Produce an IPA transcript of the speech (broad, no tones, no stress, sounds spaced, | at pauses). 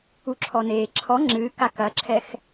u ǁʰ ɔ n eː ǁʰ ɔ ŋ͡ǁ ɨː k a k ɐ ǁʰ ɛ x